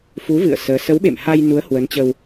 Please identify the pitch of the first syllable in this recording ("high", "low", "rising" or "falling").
rising